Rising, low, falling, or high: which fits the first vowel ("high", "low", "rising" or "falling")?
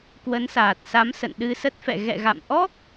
rising